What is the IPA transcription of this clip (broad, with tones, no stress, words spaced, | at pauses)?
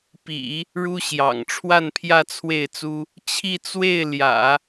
pḭ˨˩˦ | ɻu˥ɕjɑ̰˨˩ŋ ʈ͡ʂʰwa˥˧npʰjä˥˧t͡sʰwe˥˩ɪ̯t͡su˥ | t͡ɕʰi˥˧t͡swe˥˩ɪ̯ ljä̰˨˩˦